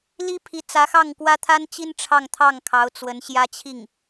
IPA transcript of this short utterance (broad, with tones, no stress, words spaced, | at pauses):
li˥pʰi˧˥ t͡sä˧˥xɑ˥˩ŋkwä˥ t̪ʰa˥nt͡ɕi˥n ʈ͡ʂʰɑ˥˧ŋt̪ʰɑ˥˩ŋ kʰɑ˧˥ʊ̯ t͡swə˧˥nɕjä˥t͡ɕʰi˥˩ŋ